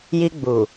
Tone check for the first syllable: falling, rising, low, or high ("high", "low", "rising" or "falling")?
high